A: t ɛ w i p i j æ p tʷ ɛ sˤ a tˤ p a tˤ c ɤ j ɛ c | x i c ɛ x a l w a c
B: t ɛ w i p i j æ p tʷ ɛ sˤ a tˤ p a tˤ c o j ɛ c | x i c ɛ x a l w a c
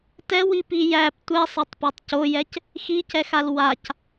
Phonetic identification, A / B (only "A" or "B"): B